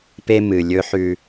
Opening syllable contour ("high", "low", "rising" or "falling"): high